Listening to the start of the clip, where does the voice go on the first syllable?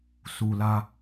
low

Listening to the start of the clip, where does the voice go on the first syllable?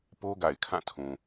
high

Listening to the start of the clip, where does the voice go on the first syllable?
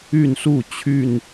falling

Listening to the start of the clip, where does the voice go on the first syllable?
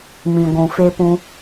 low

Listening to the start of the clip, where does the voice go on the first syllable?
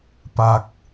low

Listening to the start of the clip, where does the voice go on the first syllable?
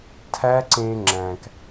high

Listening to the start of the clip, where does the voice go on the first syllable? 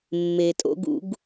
low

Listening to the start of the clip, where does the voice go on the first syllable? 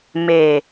low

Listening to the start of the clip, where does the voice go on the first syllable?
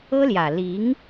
high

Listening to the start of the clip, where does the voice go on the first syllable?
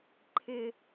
falling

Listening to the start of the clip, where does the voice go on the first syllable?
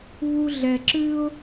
high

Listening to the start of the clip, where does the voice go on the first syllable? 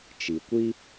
low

